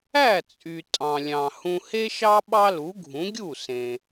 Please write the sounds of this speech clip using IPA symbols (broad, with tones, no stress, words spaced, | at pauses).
æ˥˩t͡sʼy˩ tʼɑ̃˩lʲɑ̃˩ hũ˧he˥ʃɑ˥ ɓɑ˥lu˩˥ɡʱũ˩˥ ɡʲu˥˩sẽ˩